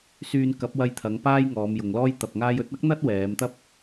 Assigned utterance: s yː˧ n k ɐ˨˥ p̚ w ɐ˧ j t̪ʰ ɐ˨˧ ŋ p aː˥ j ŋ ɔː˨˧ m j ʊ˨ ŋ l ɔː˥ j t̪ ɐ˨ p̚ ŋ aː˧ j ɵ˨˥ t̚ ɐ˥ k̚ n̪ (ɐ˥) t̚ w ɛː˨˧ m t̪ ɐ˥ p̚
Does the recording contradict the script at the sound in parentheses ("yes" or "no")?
no